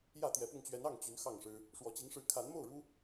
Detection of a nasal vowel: absent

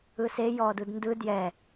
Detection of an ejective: absent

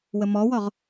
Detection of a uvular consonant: present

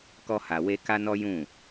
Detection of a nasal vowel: present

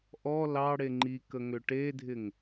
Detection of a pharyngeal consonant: absent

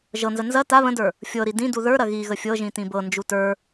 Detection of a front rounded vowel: absent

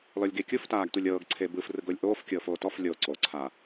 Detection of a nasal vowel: absent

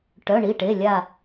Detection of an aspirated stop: absent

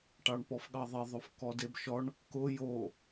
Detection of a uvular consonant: absent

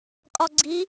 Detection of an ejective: present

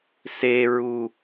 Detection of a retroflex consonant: absent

